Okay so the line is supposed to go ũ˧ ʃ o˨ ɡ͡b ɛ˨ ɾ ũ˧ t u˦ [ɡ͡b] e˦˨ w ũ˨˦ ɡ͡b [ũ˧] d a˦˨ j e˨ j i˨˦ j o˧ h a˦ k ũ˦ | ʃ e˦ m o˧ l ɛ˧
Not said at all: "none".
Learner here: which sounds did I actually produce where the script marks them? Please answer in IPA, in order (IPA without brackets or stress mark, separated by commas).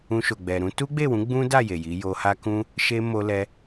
ɡ͡b, ũ˦